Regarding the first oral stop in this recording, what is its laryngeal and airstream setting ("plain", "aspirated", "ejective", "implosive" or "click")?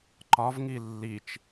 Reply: click